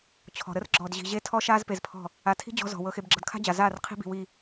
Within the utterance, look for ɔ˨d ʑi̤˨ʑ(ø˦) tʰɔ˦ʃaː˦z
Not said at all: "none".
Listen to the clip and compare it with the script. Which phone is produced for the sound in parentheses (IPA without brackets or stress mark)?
e˦